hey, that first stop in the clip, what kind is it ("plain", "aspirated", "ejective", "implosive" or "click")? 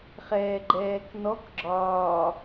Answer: click